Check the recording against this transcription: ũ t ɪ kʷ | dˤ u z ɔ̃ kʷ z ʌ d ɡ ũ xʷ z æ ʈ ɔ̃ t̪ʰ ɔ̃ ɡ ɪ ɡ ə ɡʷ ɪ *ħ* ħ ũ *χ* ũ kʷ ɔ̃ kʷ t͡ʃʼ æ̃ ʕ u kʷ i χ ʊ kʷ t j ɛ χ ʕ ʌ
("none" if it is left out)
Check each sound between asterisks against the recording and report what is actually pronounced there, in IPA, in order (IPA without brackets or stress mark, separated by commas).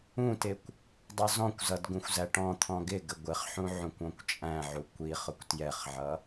χ, ʕ